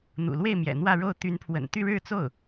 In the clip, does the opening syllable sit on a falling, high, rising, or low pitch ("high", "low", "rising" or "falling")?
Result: low